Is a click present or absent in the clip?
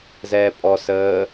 absent